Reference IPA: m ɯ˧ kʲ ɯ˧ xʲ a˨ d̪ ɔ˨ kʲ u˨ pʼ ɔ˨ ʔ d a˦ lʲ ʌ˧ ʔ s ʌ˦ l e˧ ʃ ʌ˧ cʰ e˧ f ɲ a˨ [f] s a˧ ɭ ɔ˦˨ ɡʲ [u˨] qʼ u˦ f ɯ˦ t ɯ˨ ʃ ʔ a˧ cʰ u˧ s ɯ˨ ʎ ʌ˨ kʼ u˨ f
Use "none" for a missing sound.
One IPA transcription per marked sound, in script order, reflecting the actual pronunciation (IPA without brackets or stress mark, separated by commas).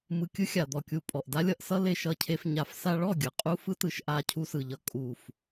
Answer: f, ɯ˨